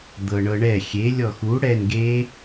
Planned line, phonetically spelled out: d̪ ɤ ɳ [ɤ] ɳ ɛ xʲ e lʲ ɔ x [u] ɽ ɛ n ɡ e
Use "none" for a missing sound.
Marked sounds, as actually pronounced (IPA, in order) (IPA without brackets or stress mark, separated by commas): ɤ, u